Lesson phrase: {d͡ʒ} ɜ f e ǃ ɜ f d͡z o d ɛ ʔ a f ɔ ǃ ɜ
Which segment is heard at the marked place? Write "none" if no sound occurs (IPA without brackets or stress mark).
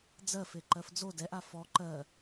d͡z